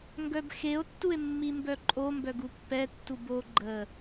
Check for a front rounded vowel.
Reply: present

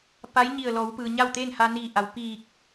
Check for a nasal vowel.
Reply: absent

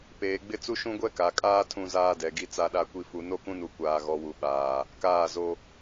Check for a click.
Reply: absent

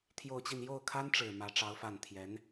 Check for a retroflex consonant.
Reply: present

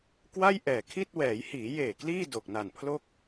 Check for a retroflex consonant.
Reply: absent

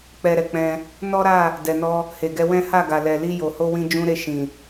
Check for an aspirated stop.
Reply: absent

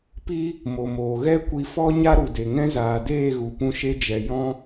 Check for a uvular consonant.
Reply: absent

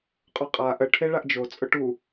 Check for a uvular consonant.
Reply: present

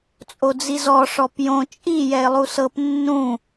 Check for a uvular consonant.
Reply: absent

